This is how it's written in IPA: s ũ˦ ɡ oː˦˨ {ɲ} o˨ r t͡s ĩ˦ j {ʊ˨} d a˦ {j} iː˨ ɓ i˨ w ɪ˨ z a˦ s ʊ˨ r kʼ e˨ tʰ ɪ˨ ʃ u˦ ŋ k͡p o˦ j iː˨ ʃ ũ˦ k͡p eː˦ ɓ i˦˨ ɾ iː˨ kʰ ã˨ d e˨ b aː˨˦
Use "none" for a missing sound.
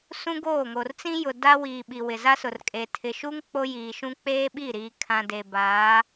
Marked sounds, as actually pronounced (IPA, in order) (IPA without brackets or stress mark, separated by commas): ŋ, ʊ˨, w